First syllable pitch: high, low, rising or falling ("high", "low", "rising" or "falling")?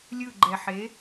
falling